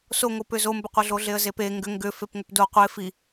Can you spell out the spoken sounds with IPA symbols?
s o ŋ o p ʏ z o m b ʏ qʷ e ɮ o ɮ e ə̯ z e p e ŋ ɡ ʏ ŋ ɡ ʏ f e p ŋ ʏ p d o qʷ e f i

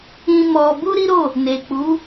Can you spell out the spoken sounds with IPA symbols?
ĩ˧ m ɔ˧ b u˦ ɾ i˦ ɾ o˦˨ | n e˨ k͡p u˨˦

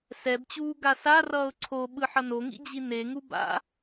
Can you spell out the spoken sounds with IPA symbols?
s ɛ b t͡ɕ uː ɡ a s a r ʌː ʊ̯ ǀʰ o ɓ ɯ ħ ʌ n o ŋ ḭ d͡ʑ i n e ŋ u b a̰

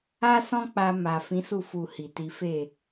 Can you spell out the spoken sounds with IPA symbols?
a˦ s ɔ̃˦ k͡p a˧ m a˨ f ĩ˨˦ s u˦˨ f u˨ h i˨ t i˨˦ f e˦˨

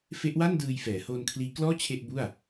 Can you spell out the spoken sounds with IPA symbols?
f e˦˥ ʔ w a˥˩ n d ɯː˧ j f ɛː˩˦ h oː˧ n kʰ l iː˦˥ k l ɔː˥˩ t͡ɕʰ e˥˩ ʔ b u˥˩ a̯

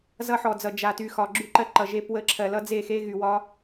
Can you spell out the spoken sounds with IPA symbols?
z ʌ˦ ħ ɔ˨ d͡z ʌ˨ d͡ʒ a˨ t y˨ x ɒ˨ ɡ͡ǁ y˦˨ ǃ ɜ˦ ǃ ʌ˨ ʒ e˦˨ p w ə˦˨ ǁʰ ɜ˨ l ʌ˦ d͡z e˦˨ x e˦ ɣ y˨ w ɒ˦

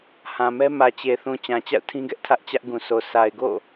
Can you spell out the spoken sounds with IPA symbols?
h ã˨ m ɛ˦ m ä˨ t͡ɕ e˨ θ ũ˨ t͡ɕ ã˨ t͡ɕ a̰˦˨ ʊ̯ tʰ ĩ˦ ɡ ɛ˦ ʔ tʰ ä˦ ʔ t͡ɕ ä˦ ʔ ɡ ũ˨ s o˨ s a˨ ɪ̯ ɡ o̰˦˨

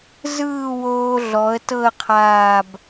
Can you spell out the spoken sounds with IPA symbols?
z ɯː˥˧ w oː˧ ɮ ɔ˩˧ ə̯ t ɤ˥˧ ə̯ qʰ aː˧˩ b

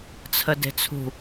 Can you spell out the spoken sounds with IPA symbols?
t͡sʰ ə d e̤ t͡sʰ ṳ

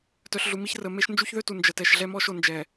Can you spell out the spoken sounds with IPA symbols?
t œ˨ ɬ ɮ u˨ m i˦ ç r ə˨ m e˦ ʃ n d͡ʒ u˦ ç ð ø˦ t u˨ n d͡ʒ ə˨ t ɛ˨ ʃ ɮ ɛ˦ m ɔ˦ ʃ o˨ n d͡ʒ ɛ˨

